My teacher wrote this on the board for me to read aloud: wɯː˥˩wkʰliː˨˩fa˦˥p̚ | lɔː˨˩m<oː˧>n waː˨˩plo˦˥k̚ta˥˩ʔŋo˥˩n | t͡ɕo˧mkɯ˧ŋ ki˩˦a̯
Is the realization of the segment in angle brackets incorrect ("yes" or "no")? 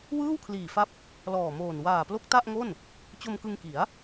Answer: yes